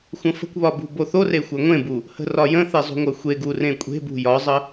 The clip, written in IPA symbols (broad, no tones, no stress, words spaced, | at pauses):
xʷə̃fə̤kʷβɒ bṳboθore xʷœŋʷẽbu | hə̤rɒjə̃θe zˤṳŋʷœxʷeɡu rẽkʷʼe̤bṳ jɒzˤə